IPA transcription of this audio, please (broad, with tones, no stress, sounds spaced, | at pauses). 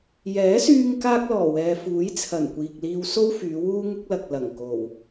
j ɛː˨˥ s yː˧ ŋ k aː˥ k̚ l ɔː˨˩ w ɛː˨ f uː˨˥ j t͡sʰ ɐ˨˩ n kʷ iː˨ k̚ l iː˧ w s o˥ w f yː˨˧ w uː˥ ŋ ʊ˥ k̚ l ɐ˨ k̚ l ɐ˨˩ ŋ k o˨˩ w